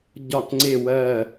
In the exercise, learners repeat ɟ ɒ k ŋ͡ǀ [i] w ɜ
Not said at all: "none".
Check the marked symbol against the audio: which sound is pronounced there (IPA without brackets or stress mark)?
e